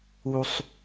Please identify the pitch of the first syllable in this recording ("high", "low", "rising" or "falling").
high